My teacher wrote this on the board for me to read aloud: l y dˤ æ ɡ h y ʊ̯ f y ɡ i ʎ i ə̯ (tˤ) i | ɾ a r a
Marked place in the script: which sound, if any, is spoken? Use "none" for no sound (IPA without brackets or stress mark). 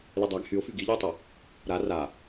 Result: tˤ